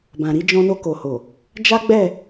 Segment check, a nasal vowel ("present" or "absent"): present